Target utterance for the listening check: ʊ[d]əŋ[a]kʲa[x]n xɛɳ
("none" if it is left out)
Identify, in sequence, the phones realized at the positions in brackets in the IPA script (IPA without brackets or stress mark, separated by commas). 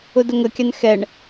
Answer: d, ə, none